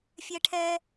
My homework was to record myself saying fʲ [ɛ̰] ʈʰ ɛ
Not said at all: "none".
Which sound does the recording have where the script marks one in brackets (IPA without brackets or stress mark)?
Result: ɛ